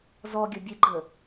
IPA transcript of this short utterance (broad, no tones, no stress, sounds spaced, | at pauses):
z ɔ ɡʲ ə bʲ e ɡ͡ǃ ə